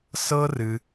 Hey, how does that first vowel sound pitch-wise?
high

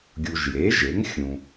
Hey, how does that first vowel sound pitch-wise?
low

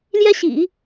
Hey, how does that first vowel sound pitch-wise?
high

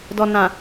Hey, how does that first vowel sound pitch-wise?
low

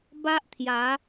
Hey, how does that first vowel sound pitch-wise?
high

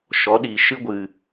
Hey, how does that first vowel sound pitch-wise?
rising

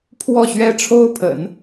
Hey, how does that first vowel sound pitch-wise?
falling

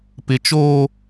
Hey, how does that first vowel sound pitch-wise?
high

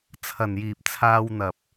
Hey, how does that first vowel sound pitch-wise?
low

